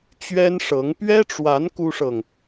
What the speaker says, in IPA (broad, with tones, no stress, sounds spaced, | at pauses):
t͡ɕ ɥ ɛ˥ n ʂ ɤ˧˥ ŋ p ɥ ɛ˥ ʈ͡ʂ w a˧˥ n k u˥ ʂ ɤ˨ ŋ